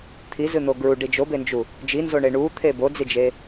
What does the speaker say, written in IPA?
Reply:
t̪ʰ i z ɨ n̪ o ɡ ɹ u ɖ i d͡ʒ o b e n d͡ʒ u | d͡ʒ i n z o ɳ e ɳ u t̪ʰ e b o d͡z i d͡ʒ e

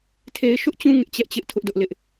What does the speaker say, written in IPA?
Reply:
tʰ e˦ ɪ̯ ʃ ʊ˦ ʔ t͡ɕ ũ˦ ŋ ɪ˦ ʔ t͡ɕ ɛ˦ ʔ t͡ɕ ɪ˦ ʔ tʰ ʊ˦ ʔ d ʊ˦ ʔ l ɪ˦ ʔ

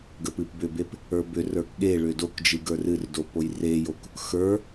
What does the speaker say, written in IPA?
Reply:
ɡ ə p ɨ p b ʏ b e p | ə˞ b ʏ r ə˞ k ɠ e ɭ ʏ d o k d͡ʒ ɨ ɡ ə˞ r ɨ r d o p o j r e j o k | x ə˞

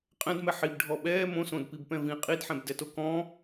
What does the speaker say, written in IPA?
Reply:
qʼ ɛ̃ d m ɛ ħ i b ɖʱ ɔ ɓ ɛː m õ s õ d p i b p ɛ̃ v ĩ qʼ i d ħ ɛ̃ b d ɛ t o k ɔ̃

